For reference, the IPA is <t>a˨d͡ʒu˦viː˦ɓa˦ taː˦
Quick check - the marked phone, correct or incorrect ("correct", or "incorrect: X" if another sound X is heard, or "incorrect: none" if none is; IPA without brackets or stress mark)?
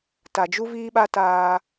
correct